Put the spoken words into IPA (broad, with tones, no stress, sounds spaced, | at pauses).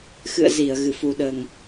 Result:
x ɨ̰˧˨ ə̯ z i˧˩ ə̯ ɣ ɨ˧˩ f u˨˩ ɗ əː˨˩ ŋ